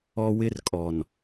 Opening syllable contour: high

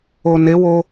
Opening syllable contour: low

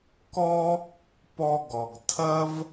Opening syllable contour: high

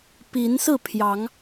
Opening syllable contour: rising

